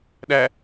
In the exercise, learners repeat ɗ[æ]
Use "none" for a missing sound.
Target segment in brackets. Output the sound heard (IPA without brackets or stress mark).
æ